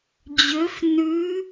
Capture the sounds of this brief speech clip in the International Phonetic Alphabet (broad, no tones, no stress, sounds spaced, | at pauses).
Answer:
d͡ʑ ø f n ʉ